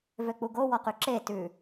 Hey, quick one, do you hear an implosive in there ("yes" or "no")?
no